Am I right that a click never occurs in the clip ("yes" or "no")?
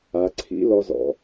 no